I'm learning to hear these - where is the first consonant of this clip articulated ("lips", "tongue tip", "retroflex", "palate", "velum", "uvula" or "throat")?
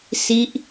tongue tip